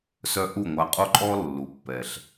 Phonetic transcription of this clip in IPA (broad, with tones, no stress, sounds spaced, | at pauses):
s œ˥ ʔ u˥˩ ŋʷ a˧ qʼ o˥ ǃʼ ɔ˥ lː u˩˥ pː ɛ˩ ɬ